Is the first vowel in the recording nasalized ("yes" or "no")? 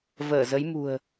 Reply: no